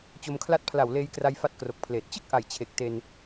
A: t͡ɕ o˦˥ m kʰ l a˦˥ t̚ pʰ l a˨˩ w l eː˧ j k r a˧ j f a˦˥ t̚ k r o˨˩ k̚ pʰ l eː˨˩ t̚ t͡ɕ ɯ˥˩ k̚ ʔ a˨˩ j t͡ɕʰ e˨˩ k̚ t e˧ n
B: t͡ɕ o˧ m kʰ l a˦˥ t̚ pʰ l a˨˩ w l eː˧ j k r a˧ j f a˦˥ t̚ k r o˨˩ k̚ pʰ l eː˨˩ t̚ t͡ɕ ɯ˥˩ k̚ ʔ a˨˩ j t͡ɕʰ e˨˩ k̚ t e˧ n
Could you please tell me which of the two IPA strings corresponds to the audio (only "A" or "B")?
B